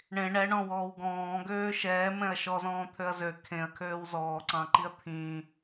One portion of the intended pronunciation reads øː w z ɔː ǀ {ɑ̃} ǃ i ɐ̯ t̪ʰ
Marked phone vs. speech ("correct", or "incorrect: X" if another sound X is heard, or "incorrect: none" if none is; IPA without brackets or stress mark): correct